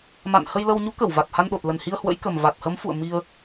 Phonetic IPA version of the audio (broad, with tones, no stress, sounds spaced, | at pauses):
m a̰˧˨ n h ə˧ j l ə˧ w ɲ u˨˦ k ə˧˩ w v a˨˩ t̚ h a˧ n ɗ o˨˩ t̚ l ə˨˩ n h i˧ ə̯ h w ə̰˧˥ j k ə˨˩ m v a˨˩ t̚ h ə˨˦ m f ṵ˧˨ ə̯ m i˧ ə̯